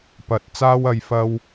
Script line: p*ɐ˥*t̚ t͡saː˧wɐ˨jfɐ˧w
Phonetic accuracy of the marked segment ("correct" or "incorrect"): incorrect